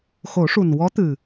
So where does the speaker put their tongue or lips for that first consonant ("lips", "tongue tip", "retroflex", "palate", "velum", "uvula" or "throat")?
velum